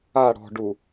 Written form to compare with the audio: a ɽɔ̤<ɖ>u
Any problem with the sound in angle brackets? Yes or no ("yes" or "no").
no